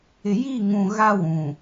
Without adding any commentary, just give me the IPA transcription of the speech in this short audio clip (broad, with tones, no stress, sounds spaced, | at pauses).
ɪ˨ j i˦˨ ŋ ũ˨ ɣ a˦ w ũ˨